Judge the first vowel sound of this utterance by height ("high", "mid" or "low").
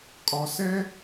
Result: low